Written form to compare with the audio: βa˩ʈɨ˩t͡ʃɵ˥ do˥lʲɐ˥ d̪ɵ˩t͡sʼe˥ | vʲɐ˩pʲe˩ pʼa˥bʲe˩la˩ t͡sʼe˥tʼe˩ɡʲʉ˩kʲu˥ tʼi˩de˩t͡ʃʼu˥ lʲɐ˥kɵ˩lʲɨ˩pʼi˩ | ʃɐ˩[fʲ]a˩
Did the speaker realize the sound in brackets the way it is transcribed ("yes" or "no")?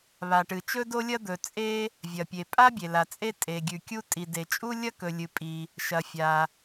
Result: yes